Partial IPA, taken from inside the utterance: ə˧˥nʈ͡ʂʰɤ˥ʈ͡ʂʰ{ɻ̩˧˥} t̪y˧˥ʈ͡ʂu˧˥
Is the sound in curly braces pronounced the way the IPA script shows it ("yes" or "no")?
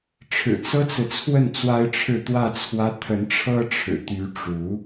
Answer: no